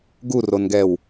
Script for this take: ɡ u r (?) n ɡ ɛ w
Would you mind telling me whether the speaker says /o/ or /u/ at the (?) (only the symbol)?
o